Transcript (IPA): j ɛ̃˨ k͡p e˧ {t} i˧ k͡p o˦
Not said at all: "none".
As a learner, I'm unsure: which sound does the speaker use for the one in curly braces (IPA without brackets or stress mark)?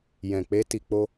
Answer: t